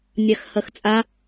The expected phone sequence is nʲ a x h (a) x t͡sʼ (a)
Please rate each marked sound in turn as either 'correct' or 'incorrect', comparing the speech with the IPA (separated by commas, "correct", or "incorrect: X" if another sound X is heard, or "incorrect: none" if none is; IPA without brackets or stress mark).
incorrect: ɐ, correct